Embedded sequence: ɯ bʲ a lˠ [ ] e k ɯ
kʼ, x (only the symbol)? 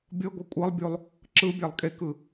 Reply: kʼ